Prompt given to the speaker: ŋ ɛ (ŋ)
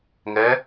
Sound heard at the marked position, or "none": none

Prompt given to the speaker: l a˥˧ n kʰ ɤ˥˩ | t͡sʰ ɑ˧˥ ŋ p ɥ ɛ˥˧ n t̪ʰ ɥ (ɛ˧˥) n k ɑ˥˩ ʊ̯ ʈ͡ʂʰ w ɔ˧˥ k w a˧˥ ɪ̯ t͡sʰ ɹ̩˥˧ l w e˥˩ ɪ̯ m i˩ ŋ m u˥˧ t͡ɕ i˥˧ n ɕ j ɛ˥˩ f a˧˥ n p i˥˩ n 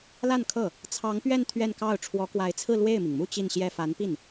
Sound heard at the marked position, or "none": ɛ˥˧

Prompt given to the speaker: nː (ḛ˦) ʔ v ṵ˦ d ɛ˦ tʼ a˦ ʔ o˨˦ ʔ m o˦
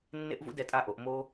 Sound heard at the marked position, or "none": ḛ˦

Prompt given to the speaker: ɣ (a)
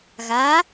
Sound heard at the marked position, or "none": a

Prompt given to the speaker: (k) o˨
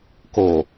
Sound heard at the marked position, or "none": k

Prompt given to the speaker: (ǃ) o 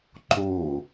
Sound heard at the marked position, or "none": ǃ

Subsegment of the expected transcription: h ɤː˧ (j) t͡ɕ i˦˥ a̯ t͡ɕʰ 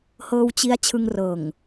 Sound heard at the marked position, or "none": w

